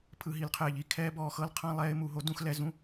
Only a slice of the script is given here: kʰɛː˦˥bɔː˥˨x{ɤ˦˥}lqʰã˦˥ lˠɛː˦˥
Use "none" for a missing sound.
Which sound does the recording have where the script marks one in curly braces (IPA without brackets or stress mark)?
ɤ˦˥